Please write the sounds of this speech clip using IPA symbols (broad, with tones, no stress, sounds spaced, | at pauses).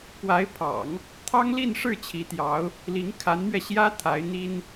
k w a˧˥ ɪ̯ pʰ ɑ̰˨˩˦ ŋ | t̪ʰ ɑ˥ ŋ l i˥˧ n ʂ ɻ̩˥˩ t͡ɕʰ i˧˥ t̪ j ɑ˧˥ ʊ̯ | l i˧˥ ŋ kʰ a˧˥ n m ɥ ɛ˧ ɕ j ä˥ t̪ʰ a˧˥ ɪ̯ n̪ i˥ n